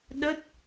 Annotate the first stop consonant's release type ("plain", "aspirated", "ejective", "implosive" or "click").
implosive